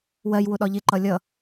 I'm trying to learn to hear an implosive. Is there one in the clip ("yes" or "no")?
yes